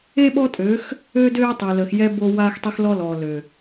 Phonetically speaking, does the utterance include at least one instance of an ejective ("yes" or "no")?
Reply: yes